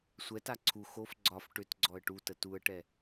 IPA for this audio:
sʷ ɛ t a ǀʰ u x o f ɡ͡ǀ ɒ f ʈ ʏ t ɡ͡ǀ ɔ ə̯ ʈ u t ə t u ə̯ ʈ ɛ

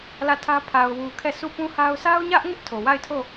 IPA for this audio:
l ä˦˨ tʰ ä˦ pʰ a˨ ʊ̯ w u˨ kʰ ɛ˦˨ sʰ u˦˨ p ũ˦ h a˦ ʊ̯ sʰ a˦ ʊ̯ ɲ ä˦ ʔ ŋ ɪ˦ ʔ tʰ o˨ w a˦˨ ɪ̯ tʰ o˦˨

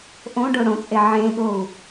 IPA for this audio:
ʔ õ ɖ o ɽ õ t͡sʼ e ʕ ẽ ɠ o u̯

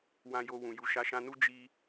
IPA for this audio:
w ã˧ j o˧ w ũ˨ j u˨ ʃ a˨˦ ʃ ã˧ n u˦ d͡ʒ i˧

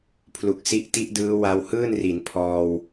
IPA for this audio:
pʰ l u˨˩ k̚ s i˦˥ ʔ t i˦˥ ʔ d ɯː˦˥ w a˧ w h ɯː˥˩ n r i˩˦ n pʰ ɔː˧ w

